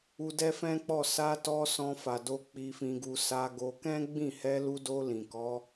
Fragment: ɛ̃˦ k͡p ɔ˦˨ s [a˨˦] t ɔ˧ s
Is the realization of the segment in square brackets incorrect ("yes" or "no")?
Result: yes